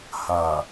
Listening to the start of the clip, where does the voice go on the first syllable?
low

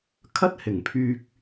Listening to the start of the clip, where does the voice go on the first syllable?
high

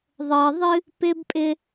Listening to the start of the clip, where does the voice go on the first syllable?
low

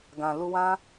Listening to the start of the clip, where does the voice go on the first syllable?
low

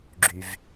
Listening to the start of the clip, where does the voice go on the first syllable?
low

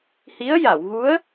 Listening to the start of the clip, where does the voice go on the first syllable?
rising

